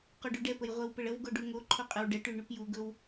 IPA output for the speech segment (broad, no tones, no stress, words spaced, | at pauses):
qoɖuɖɛpəj ʁʷɛwpəɭəvɡo ɖuŋoǃʰo qʼəwɖəʈy ɳypjuɡɵw